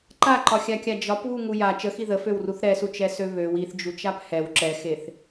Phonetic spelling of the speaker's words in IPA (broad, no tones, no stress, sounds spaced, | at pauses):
ǃ a ǃ ɒ xʲ a kʲ a d͡ʒ ɒ p β u ŋ u j a t͡ʃ ə x i ð ə f ø w r u θ ɾ ɛ s u t͡ʃ ɛ s ø β ø w i θ d͡ʒ u t͡ʃ a p h ɛ w ǁ ɛ x e θ